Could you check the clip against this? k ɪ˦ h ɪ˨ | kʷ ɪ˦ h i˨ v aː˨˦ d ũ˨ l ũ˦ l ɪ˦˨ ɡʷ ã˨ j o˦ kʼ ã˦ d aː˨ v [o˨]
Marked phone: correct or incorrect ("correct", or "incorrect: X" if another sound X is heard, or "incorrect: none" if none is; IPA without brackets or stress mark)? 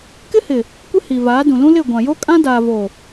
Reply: correct